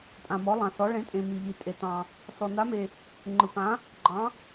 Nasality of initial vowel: nasal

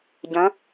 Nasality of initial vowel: nasal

